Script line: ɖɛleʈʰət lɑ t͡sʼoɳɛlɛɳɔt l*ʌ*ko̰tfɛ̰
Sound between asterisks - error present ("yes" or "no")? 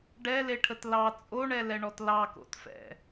yes